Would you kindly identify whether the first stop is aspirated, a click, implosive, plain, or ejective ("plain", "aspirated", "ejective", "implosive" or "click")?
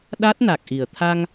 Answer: implosive